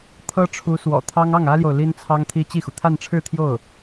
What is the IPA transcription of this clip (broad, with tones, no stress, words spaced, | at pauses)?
t̪ʰɤ˥ ʈ͡ʂʰu˧˥swɔ̰˨˩t̪ʰɑ˥ŋ ɑ˥˩ŋä˥ljo˨ʊ̯ li˥nt͡sʰɑ˥ŋt̪ʰi˥ t͡ɕi˥˩xu˩ t̪ʰa˥˧nʈ͡ʂʰɻ̩˥˧t̪ʰjo˥˩ʊ̯